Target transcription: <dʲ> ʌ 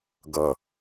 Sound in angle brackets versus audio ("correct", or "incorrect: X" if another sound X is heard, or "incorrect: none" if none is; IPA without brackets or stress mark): incorrect: ɡ